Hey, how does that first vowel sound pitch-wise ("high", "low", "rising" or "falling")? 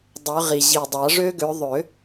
rising